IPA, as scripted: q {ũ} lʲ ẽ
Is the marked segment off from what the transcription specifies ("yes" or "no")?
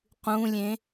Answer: no